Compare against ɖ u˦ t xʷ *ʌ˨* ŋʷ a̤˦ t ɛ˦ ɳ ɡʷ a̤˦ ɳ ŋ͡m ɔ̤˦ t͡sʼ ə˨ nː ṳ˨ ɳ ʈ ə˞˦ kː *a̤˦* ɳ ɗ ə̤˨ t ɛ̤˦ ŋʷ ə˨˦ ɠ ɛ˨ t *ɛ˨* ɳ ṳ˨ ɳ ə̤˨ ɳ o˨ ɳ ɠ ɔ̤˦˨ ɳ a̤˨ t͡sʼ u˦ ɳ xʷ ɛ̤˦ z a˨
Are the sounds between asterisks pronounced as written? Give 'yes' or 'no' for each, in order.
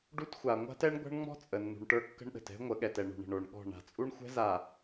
no, no, yes

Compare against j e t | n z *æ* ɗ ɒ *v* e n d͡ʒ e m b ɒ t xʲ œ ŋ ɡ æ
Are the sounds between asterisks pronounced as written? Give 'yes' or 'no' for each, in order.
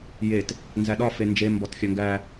yes, no

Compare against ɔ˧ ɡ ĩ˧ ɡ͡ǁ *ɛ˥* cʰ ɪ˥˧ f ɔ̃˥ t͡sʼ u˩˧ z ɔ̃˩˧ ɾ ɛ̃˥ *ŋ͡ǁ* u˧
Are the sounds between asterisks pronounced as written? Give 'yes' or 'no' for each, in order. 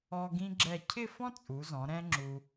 no, yes

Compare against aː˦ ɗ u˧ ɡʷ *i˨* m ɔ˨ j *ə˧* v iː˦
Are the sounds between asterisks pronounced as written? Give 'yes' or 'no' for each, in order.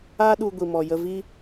yes, yes

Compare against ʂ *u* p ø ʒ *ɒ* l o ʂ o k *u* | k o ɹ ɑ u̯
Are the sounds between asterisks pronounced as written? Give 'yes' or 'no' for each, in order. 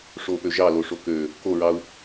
no, no, no

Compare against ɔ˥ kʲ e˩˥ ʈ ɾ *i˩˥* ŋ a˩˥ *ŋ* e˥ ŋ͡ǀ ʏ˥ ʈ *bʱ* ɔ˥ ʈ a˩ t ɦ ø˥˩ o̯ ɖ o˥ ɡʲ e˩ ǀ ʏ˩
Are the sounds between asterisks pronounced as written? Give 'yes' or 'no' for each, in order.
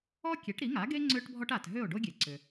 yes, no, yes

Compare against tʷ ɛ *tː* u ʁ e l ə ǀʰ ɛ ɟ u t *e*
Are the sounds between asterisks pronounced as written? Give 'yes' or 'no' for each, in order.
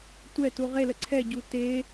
no, yes

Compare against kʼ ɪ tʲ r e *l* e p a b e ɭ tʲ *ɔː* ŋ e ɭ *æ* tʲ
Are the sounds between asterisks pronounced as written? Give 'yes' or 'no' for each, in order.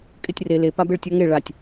yes, no, no

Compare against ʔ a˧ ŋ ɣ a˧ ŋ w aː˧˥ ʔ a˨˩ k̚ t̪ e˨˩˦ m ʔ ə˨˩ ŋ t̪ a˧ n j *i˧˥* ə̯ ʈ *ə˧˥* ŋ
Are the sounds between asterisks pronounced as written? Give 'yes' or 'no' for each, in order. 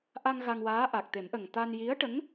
yes, yes

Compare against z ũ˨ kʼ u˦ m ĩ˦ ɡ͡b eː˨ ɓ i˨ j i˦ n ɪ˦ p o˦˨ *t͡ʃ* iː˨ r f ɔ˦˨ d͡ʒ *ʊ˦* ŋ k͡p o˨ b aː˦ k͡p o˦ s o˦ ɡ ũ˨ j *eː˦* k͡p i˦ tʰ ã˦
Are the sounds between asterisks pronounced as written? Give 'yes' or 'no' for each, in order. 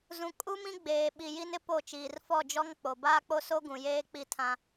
yes, no, yes

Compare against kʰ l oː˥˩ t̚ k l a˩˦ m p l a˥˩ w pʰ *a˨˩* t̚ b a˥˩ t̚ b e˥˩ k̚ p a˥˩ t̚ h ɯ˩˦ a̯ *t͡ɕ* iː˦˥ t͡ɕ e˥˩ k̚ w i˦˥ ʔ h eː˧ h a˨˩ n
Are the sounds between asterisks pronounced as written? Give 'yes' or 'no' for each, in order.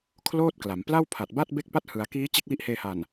yes, no

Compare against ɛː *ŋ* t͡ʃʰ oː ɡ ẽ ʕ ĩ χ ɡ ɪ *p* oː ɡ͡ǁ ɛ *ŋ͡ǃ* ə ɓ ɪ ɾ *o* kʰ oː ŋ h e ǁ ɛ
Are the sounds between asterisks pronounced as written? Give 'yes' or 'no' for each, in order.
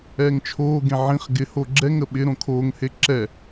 yes, no, no, no

